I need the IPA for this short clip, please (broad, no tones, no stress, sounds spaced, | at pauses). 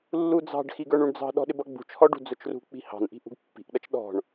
lː u d͡z ɑ̤ ɖ x i ɡ ə˞ ɳ u ɳ d͡z ɑ̤ ɗ ɔ̤ ɗ ɪ b ʌ ɡ͡b ṳ t͡ʃ h ɔ ɖ ṳ d͡z ʊ t͡ʃ r ṳ k͡p i̤ h ɑ̤ n ʔ i̤ ʔ ṳ ɡ pː i̤ ʔ ɗ ʌ t͡ʃ ɗ ɔ̤ ɳ